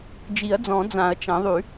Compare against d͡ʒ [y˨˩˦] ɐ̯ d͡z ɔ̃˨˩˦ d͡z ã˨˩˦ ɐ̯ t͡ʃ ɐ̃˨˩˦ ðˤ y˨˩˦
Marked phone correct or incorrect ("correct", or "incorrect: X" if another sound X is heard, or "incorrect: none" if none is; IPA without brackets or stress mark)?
incorrect: i˨˩˦